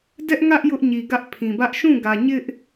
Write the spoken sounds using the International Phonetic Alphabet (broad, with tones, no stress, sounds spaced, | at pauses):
d ɛ˦ ʔ ŋ ä˦ ʔ j ʊ˦ ʔ ɲ i˨ ɡ ä˦ ʔ pʰ ĩ˨ b ä˦ ʔ ʃ ũ˦˨ ɡ ä˨ ɲ ɪ˦ ʔ